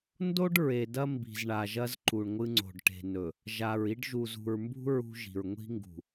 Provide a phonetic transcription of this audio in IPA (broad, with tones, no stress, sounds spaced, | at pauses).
n d o˦ ɖ ɹ e˨ d ɐ˦ m b i̤˨ z ɳ a˨ ʒ ɐ˦ z ǃ u˨ ɳ ŋʷ ɨ˦ ŋ͡ǀ o̤˨ ɖ ʈ e̤˨ n ɵ˨ | ʒ a˨ ɹ i˦ ɖ ʒ u˨ z ṳ˨ ɹ m b ṳ˦ ɹ ṳ˦ ʒ i̤˨ ɹ ŋʷ i̤˦ ŋ ɡ ṳ˨